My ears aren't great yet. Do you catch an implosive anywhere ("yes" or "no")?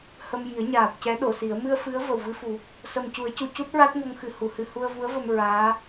yes